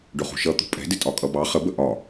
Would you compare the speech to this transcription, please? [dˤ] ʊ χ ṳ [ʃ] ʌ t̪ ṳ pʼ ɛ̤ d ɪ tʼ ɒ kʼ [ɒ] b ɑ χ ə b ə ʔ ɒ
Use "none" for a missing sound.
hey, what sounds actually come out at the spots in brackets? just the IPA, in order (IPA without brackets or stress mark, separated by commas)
ɖ, ʃ, ʌ